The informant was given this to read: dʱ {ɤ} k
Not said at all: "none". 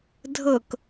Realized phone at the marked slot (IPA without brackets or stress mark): ɤ